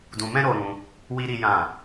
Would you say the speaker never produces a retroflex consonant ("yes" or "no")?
yes